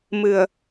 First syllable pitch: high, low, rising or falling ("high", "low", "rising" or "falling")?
low